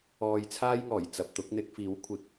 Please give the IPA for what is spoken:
ɔː˧ j t͡sʰ aː˥ j ŋ ɔː˨˩ j t͡s ɐ˨ p̚ t̪ ʊ˨˥ k̚ n̪ ɪ˧ k̚ f iː˨˥ w kʷʰ ɪ˨˥ k̚

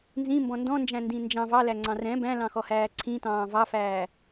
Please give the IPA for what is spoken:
n z ĩ m b ɔ̃ n d ɔ̃ n d͡ʒ æ̃ n d ĩ n d͡ʒ ɑ̃ v ɑ l æ ŋ͡ǀ ɑ̃ r ɛ̃ b æ̃ l ɑ̃ x ɔ h æː ǀʰ ĩ t ɑ̃ː v ɑ f æː

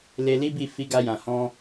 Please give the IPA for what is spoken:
l e˧ l i˦ b i˦˨ f i˨˦ ɡ a˧ j ã˨ h ɔ̃˧

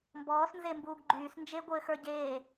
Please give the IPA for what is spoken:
m b ɔː s n z e m b uː ɡ ɡ͡ǃ yː s n d͡ʒ e ɡʷ ɘː x ə˞ ɟ eː

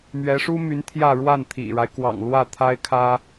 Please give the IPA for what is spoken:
m ɥ ɛ˧˥ ʂ u˥ m y˧˥ n t̪ʰ j ä˥˧ ɻ w a˥˩ n t̪ʰ ḭ˨˩ ɻ a˦ ɪ̯ k w ɑ̰˨˩ ŋ l w ä˥˩ t̪ʰ a˥ ɪ̯ kʰ ä˥

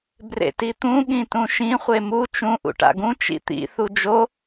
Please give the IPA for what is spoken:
b r ḛ t i t̪ ũ ɠ ĩ t ũ ʃ ĩ χʷ e m u t͡ʃ ũ ʔ ṵ ʈ a̰ ɡ ũ t͡ʃ ḭ t̪ ḭ θ u d͡ʒ o

